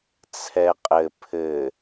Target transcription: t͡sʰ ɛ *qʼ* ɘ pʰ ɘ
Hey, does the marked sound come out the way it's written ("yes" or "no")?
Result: yes